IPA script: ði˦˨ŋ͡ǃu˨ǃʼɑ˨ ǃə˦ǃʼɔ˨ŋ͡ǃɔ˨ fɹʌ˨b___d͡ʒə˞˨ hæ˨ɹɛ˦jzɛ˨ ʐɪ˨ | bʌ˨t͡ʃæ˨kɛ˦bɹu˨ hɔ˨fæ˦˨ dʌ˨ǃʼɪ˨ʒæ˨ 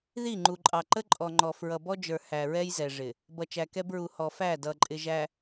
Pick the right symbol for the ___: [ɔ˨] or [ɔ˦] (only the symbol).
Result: ɔ˦